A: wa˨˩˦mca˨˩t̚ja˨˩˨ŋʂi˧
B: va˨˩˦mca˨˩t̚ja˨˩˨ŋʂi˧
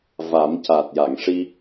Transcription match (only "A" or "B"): B